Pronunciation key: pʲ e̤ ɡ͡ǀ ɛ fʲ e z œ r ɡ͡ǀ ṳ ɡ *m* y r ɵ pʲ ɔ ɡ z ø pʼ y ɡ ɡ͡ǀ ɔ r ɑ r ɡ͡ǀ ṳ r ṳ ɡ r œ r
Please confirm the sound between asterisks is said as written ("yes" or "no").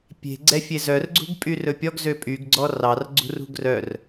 no